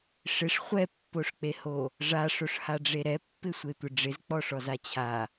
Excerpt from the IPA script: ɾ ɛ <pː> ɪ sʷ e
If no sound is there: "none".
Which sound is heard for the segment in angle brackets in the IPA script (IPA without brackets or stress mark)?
pː